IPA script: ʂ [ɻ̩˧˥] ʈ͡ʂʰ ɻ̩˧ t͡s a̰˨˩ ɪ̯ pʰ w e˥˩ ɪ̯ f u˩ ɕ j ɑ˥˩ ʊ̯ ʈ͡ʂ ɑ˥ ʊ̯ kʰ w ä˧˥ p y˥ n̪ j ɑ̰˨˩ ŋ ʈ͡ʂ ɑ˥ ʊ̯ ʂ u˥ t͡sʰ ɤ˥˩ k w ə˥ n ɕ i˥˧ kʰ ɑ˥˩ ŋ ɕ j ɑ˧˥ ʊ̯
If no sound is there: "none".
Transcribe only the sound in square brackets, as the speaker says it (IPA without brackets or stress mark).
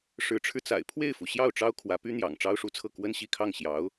ɻ̩˧˥